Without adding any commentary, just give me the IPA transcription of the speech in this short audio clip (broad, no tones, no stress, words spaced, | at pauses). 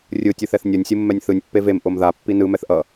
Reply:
rʲɯ tʲɯθɛθnʲʌnʲ sʲɯmːɛnʲθɯnʲ pːevem ʔomða pːinɯ mɛθʔʌ